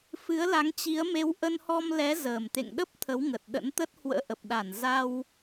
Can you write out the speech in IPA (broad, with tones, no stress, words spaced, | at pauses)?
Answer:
fɨ˨˦ə̯la˨˦ŋt͡ɕi˨˦ə̯ me˨˦wʔə˧nhɔ˧mlɛ˨˦ zəː˨˩m t̪ḛ˧˨ŋɗə˦˥p̚ t̪ʰə˨˦wŋə˨˩t̚ ɗə̰˧˥nt̪ə˦˥t̚ hwə̰ː˧˥ʔə˨˩p̚ɗa˧˩n za˧w